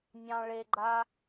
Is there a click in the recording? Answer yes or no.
yes